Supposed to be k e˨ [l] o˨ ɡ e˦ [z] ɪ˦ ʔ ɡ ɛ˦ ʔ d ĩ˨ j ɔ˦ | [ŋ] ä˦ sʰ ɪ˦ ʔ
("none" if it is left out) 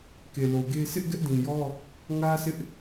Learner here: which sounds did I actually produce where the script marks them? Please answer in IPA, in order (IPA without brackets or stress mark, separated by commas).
l, s, ŋ